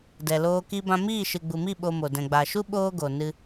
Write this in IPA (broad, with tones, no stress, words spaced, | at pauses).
dɛ˨loː˧ ki˦bã˦ miː˦˨ʃɨ˨ɡ͡bu˨mi˦˨ ɓo˧mo˨ dɛ̃˨ɡ͡ba˨ʃu˦ ɓoː˦ ɡo˨nɨ˧